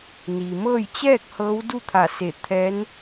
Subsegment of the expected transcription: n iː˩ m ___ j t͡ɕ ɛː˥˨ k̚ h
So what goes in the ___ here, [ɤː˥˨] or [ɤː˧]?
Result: ɤː˥˨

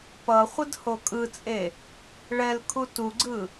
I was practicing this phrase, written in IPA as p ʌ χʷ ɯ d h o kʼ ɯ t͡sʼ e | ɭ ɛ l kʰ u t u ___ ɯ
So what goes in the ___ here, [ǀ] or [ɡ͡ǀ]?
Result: ɡ͡ǀ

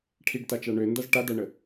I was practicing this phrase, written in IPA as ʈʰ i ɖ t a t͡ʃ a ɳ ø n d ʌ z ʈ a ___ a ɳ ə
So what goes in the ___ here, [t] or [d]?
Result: d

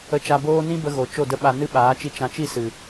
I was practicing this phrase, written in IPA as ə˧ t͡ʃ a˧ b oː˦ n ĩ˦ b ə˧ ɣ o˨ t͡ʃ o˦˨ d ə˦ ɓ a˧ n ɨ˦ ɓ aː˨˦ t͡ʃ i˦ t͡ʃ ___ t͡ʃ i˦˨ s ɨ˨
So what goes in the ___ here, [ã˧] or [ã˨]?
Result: ã˧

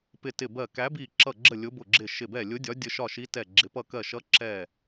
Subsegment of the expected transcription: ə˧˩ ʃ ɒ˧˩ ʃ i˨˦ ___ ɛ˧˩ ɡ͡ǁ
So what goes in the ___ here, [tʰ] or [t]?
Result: t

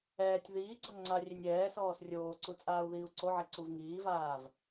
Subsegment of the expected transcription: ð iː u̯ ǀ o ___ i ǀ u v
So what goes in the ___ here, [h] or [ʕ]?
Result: ʕ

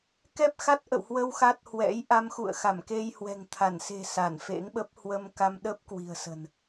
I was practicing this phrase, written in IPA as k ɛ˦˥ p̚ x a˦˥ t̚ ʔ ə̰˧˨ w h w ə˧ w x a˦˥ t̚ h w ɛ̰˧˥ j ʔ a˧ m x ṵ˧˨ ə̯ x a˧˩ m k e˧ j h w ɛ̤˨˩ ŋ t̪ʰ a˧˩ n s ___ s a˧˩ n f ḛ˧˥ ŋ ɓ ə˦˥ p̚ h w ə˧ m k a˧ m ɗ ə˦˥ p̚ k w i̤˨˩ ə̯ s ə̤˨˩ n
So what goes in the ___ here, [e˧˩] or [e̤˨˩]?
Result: e̤˨˩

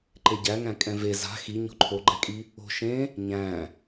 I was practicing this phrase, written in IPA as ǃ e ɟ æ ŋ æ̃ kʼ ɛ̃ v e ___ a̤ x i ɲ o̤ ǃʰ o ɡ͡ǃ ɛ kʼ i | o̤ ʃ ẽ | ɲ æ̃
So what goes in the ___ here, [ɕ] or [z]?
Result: z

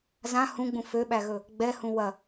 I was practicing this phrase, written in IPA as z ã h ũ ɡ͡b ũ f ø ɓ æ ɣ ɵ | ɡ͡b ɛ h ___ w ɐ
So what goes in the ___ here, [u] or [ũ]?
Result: ũ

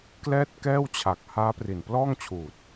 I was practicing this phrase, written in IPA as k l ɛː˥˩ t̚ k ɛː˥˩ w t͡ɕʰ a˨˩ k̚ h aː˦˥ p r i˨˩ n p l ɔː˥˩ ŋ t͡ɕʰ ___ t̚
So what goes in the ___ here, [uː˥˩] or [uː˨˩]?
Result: uː˨˩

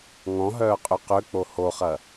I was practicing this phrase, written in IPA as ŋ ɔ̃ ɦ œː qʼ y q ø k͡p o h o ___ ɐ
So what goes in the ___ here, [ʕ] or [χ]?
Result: χ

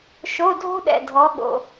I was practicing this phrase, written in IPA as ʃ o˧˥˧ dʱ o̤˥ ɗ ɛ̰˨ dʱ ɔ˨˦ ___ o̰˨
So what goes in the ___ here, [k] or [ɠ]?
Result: ɠ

